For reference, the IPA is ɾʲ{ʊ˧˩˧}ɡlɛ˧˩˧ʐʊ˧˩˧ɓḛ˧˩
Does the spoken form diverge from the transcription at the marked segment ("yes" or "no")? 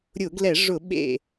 no